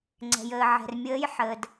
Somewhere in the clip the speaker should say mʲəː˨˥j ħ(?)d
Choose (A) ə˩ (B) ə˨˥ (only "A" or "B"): A